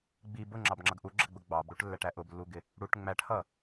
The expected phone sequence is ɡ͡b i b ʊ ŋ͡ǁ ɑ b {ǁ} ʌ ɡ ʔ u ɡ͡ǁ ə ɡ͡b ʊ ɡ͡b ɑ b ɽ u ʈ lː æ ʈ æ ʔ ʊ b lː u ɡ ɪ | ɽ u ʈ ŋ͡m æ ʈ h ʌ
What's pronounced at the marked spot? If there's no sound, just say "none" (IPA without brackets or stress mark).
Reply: ŋ͡ǁ